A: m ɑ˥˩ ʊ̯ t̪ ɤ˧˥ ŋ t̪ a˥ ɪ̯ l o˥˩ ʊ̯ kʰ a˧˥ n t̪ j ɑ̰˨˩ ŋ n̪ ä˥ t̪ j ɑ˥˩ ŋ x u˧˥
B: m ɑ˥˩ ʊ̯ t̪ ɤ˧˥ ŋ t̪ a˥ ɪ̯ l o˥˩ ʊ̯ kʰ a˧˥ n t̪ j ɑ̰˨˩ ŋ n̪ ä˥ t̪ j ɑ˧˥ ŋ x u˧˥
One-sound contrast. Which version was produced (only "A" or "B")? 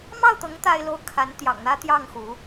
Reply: A